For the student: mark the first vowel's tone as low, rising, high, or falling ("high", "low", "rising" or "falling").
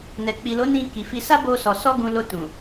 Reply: low